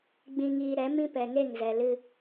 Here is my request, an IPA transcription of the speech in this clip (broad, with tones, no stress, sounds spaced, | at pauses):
ɡ͡b ĩ˧ ŋ iː˧ ɾ ɛ˨˦ m ĩ˦ p ɛ˨ ŋ e˦˨ ŋ z ɛ˨ l ɨ˧